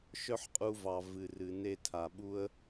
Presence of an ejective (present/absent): present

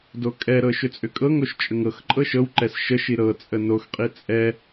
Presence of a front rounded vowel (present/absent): present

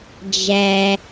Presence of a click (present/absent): absent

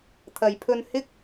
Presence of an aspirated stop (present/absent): present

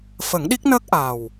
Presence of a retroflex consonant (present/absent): absent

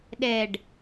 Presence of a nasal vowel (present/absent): absent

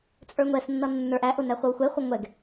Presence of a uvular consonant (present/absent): present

